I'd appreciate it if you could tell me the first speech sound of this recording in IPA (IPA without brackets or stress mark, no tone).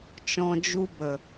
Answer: t͡ʃ